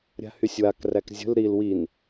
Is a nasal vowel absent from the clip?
yes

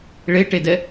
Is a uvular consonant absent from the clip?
yes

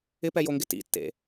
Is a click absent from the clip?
yes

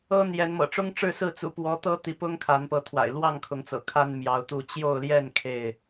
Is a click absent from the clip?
yes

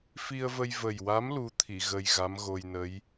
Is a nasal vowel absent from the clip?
yes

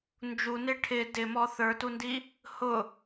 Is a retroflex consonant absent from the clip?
no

